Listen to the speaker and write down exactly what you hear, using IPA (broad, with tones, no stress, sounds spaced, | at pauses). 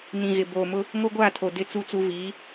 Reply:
n ĩ˨ ɣ ɪ˨ b oː˨ m ʊ˦ | ŋ o˦ ɡʷ aː˦˨ tʰ o˨ d ɪ˦˨ t͡s u˦˨ t͡s u˦ v iː˨˦